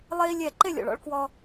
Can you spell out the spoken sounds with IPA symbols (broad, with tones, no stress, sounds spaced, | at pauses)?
lˠ e˦ i̯ lʲ ɛ˦˨ ǃ e˦˨ lʲ ɔ̰˨ ɭ ɔ̰˧ ɭ k w ɔ˧